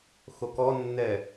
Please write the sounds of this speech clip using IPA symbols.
xokɔnːɛ

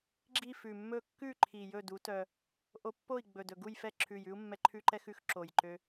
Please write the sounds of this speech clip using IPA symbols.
ɡ͡ǁi˥˨ fʉ˨˩mːɵ˥˨ kːʉ˥˨ ǃʰi˨˩jɵ˥˨du˨˥tœ˧ | ʔo˧pːo˥˨i̯ ɡ͡bɵ˨˩dɵ˨˩ɡu˥˨jfɛ˥˨ ǁʰʉ˨˩jʉ˥u̯ mːɛ˧ ǃʰʉ˥ǃɛ˥xʉ˥˨x ǁo˨˩jǃø˧

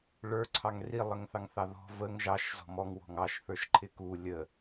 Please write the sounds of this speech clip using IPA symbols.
ɭə˞ǀʰɑŋ rilˠəŋθɑŋθɑ ðɔ̤ vəŋ ʒɑʃ zɔ̤mɔŋ wɔ̤ŋɑʃ θə˞ʃǃʰɪku lʲə

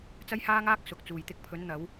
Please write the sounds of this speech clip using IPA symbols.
t͡sɐ˥jhaː˥ŋaː˥k̚ sʊ˨k̚t͡suː˨jt̪ɪ˧k̚ pʰɵ˨˧nn̪ɐ˨˧w

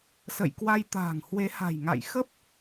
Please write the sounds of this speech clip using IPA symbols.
sə̰˧˨jkwa˧jt̪a̤ː˨˩ŋ hwe˨˦ha̤˨˩jŋa̰˧˨j xə˦˥p̚

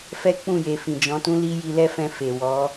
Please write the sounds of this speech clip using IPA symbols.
fɛ˦k͡pũ˦˨je˨fĩ˨ d͡ʒɔ̃˨˦tũ˦ li˦ ji˧lɛ˦fɛ̃˧ fe˨ wɔ˨˦

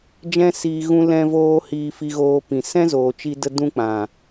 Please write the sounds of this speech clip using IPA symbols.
d͡ʒɛ̃˦siː˧ ɣũ˦ lɛ̃˦voː˦ hiː˧fi˧ɣoː˧pĩ˨ sɛ̃˦zoː˨t͡ʃi˧də˧ dũ˦k͡pã˨

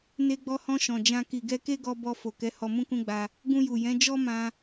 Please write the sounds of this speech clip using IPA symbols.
ne˧ɡ͡bɔ˧hɔ̃˧ ʃɔ̃˨d͡ʒã˧ ki˨ɡɛ˧ke˦ɡɔ˧ bɔ˧ fo˨kɛ˨˦ hɔ˧mũ˦kũ˦ɡ͡ba˧ | ɡũ˧ju˨jɛ̃˨˦ d͡ʒɔ˦mã˧

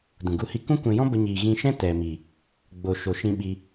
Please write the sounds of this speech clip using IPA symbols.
dũ˨ɡu˦˨hi˦ kũ˦kʷɛ̃˧jɔ̃˦bə˧ ɲiː˨ɣĩ˧ʃɛ̃˦ tɛ˨mi˨ | ɡ͡bo˨ ʃo˨ʃĩ˧ ɓi˧

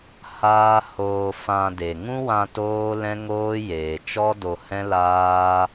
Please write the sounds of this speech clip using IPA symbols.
haː˦ hoː˧ fã˧ de˨ŋũ˦wã˧ toː˦ lɛ̃˦ŋoː˦jeː˨ t͡ʃɔ˦do˧hɛ̃˦laː˦

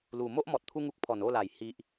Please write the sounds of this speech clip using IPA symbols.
lu˨˩mo˦ʔ mɔ˨t̚t̪ʰu˧ŋu˦k̚ pʰɔ˨˩no˥˧la˨˩j hi˨ʔ

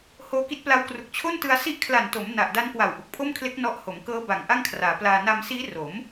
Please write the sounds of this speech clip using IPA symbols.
hoː˧ki˦˥t̚pla˦˥wkru˨˩k̚ t͡ɕʰo˥˩ntɯ˧a̯ si˦˥ʔkʰla˨˩nto˩˦m na˨˩ʔda˦˥nkwa˨˩w ʔu˨˩k̚pʰo˥˩mkʰle˦˥k̚ nɔ˦˥ʔ ho˩˦mkɤː˦˥ ba˨˩ŋ ʔa˥˩ŋkʰraː˩˦ plaː˧ na˧msiː˦˥ ro˩˦m

